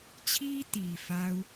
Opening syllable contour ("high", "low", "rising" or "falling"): high